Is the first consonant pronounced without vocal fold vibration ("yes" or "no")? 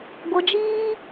no